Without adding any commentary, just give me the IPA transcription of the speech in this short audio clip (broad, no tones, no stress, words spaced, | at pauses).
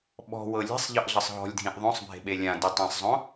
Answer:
ɓɔ̤wɤ lʲe̤sˤʎɤʔɮɯsˤ ɦɔ̤lʲdʱĩʔ ðˤõsˤbʱe̤ɓe lʲãditˤãsˤzˤõ